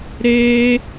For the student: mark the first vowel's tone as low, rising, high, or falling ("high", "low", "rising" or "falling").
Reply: high